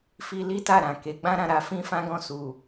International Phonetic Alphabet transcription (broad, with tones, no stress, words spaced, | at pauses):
fi˧li˦ta˦˨ ɾã˨ke˨˦ ɡ͡bã˦ɾã˦˨ɾa˧fĩ˦ fã˦ɡɔ̃˦˨ su˨